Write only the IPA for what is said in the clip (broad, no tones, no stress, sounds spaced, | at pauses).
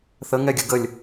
θ ə ŋ ɛ ɡʲ ə ɡ ə lʲ